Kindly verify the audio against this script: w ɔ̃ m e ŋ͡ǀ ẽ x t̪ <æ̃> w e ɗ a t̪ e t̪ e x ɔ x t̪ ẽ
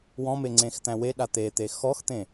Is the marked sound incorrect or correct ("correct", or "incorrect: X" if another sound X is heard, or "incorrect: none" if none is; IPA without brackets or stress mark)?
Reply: correct